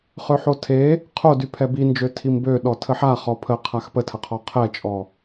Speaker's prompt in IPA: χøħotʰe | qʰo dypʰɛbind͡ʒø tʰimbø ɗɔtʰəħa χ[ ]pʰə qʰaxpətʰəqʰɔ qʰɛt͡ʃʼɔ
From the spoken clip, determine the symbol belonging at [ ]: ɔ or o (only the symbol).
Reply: ɔ